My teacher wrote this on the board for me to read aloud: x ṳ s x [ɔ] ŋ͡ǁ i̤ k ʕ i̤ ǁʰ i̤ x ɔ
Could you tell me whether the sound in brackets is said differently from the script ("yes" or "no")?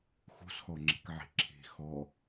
no